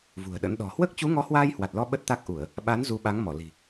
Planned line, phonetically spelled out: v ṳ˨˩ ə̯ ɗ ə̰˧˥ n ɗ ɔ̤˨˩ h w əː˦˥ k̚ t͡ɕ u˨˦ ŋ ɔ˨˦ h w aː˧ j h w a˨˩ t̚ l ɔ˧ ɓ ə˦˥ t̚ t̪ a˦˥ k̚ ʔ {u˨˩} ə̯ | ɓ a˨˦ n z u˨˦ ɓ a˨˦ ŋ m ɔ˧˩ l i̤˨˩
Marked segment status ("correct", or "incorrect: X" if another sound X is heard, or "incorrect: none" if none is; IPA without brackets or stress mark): incorrect: u˧˩˨